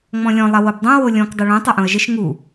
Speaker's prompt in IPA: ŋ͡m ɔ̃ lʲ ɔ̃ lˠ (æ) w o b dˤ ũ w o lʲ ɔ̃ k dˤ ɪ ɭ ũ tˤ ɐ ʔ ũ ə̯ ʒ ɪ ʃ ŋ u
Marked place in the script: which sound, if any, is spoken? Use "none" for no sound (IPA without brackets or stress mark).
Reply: ɐ